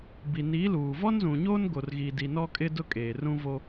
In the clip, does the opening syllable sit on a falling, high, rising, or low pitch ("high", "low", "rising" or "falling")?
low